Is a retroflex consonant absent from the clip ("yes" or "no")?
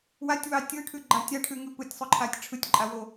no